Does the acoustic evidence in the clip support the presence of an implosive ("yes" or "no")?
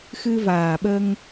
yes